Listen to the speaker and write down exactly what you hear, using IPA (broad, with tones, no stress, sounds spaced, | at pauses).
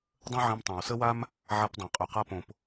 dˤ ə̃˦ ʕ ĩ˧ m tˤ ã˨ w s ə˦ w a˦ m | ʕ a˧ p dˤ ã˨ qʼ y˨ q a˧ p õ˨ p